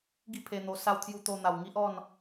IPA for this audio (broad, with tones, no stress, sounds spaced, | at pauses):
ɡ i˥˧ pʰ e˧ n̪ o˧ s a˧ w t̪ʰ j u˧ t̪ o˧ n̪ a˨˩ w ŋ i˦ ʔ ɔ˥˧ n